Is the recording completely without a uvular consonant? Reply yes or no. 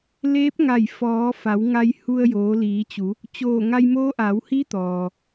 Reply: yes